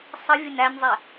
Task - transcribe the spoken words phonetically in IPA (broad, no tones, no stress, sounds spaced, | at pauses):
sˤ ə vʲ ə n æ nʲ zˤ ɛ